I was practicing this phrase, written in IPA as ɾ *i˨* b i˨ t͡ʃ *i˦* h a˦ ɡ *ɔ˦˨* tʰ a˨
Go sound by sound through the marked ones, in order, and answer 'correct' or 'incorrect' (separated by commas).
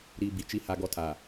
correct, correct, incorrect